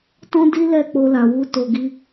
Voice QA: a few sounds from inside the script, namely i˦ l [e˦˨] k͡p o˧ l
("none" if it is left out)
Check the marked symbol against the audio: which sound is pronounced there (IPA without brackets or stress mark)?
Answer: ɛ˦˨